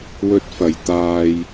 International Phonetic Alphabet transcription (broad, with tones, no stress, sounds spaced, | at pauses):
w ɵ˧ t̚ f ɐ˨ j t̪ aː˧ j